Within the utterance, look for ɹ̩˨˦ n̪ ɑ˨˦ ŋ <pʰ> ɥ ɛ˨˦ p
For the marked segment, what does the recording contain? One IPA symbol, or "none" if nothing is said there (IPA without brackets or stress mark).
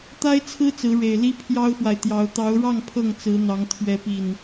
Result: t̪ʰ